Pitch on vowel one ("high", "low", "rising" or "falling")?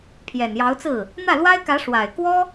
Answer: low